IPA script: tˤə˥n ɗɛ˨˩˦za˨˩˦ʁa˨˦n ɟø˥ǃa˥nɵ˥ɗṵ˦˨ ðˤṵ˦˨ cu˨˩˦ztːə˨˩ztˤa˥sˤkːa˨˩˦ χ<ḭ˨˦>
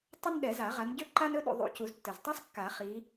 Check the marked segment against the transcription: incorrect: i˨˦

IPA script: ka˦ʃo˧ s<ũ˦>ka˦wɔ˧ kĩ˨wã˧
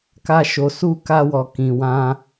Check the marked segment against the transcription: incorrect: u˦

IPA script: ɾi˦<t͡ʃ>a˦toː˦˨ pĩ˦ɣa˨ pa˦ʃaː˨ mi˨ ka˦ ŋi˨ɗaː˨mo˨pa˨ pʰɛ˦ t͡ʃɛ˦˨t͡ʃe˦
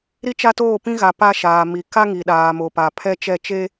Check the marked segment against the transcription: correct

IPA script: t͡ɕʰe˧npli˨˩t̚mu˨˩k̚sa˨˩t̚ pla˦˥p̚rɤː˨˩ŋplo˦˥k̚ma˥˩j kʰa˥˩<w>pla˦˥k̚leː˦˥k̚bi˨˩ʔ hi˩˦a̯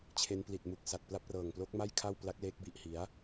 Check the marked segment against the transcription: correct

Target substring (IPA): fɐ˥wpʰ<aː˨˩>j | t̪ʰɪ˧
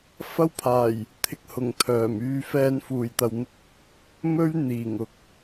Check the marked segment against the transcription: correct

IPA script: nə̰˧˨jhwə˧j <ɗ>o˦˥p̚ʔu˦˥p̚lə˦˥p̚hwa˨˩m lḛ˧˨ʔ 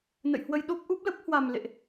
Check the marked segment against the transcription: correct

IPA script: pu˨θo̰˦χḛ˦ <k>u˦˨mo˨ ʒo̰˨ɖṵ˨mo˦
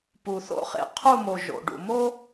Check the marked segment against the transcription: incorrect: qʰ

